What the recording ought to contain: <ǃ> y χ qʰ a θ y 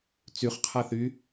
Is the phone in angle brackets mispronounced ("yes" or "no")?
yes